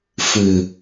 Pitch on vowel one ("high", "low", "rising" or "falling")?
low